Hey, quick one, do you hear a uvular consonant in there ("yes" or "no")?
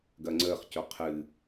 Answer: yes